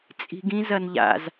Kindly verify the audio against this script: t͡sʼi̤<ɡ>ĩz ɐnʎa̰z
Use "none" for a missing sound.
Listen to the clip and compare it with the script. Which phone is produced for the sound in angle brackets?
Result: ɡ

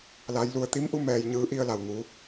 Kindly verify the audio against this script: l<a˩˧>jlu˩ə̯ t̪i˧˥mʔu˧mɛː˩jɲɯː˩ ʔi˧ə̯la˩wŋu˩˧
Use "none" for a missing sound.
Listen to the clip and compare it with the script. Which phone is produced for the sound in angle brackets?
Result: a˩˧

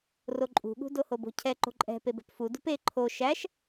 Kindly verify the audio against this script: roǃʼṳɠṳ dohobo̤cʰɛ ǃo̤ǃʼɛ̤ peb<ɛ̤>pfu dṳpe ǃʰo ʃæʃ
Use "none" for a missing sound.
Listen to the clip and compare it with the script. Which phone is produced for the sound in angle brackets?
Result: ɛ̤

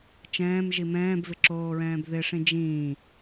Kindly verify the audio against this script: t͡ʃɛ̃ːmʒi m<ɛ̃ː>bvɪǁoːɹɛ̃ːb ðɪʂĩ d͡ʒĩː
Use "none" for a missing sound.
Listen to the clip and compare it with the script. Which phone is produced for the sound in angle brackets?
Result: ɛ̃ː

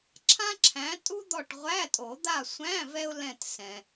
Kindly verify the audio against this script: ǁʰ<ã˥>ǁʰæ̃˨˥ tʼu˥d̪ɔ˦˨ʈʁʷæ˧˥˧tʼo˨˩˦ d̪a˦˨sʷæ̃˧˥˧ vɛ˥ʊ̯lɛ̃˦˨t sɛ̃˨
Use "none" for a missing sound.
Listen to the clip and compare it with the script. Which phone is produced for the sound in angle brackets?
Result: ã˥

